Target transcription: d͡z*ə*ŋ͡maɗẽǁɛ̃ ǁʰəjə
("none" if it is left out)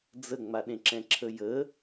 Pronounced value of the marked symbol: ə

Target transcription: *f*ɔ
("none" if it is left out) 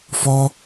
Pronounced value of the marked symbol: f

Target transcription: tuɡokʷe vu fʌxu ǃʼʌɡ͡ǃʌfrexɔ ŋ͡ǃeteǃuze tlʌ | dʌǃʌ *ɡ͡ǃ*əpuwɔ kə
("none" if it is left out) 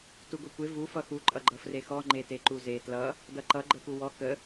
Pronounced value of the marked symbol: ɡ͡ǃ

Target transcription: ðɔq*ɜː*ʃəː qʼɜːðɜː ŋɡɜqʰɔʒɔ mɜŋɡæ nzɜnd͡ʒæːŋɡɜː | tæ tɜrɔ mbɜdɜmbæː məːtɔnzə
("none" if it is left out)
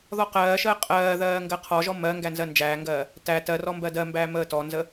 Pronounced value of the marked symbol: ɜː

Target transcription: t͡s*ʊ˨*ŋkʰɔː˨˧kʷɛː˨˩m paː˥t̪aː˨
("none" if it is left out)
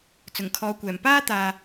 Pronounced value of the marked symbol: ʊ˨˩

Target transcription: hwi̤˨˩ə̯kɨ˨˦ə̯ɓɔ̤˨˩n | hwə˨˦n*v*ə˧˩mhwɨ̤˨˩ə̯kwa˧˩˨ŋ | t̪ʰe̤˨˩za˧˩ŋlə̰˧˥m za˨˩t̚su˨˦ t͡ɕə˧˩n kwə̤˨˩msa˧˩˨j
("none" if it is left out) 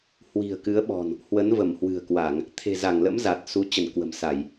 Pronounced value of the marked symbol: v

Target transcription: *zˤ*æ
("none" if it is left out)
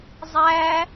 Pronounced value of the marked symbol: zˤ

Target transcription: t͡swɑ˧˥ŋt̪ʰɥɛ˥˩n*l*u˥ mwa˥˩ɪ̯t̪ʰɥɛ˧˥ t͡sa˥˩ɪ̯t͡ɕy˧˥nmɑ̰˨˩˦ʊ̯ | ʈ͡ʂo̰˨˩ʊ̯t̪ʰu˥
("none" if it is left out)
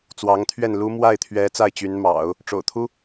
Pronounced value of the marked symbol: l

